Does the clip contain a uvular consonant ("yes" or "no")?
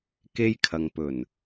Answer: no